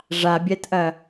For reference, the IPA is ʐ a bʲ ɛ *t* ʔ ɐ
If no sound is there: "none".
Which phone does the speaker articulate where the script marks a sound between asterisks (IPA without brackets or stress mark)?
t